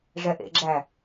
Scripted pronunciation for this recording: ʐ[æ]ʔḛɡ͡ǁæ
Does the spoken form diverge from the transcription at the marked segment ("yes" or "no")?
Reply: yes